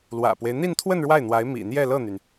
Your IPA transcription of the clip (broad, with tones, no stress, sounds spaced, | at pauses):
l w ä̰˨˩ p w e˦ ɪ̯ n̪ i˥˧ n t̪ʰ w ə˥˧ n ɻ w a˥˩ ɪ̯ n̪ w a˧˥ ɪ̯ m ḭ˨˩ n̪ j ɛ˥˧ l ɤ˥˩ n̪ y˩ n